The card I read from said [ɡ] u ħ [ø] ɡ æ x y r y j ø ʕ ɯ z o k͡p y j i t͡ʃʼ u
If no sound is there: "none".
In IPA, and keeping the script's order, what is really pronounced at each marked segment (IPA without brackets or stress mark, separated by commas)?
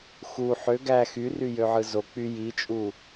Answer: x, ø